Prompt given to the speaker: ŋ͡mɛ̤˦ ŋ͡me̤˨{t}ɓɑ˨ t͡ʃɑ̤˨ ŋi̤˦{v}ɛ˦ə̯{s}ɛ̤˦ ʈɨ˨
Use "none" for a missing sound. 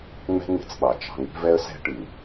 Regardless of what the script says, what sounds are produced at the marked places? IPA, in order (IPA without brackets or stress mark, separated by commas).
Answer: t͡s, v, s